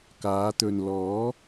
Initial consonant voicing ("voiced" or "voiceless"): voiceless